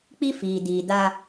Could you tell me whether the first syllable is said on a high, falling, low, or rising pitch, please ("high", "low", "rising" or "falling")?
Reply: high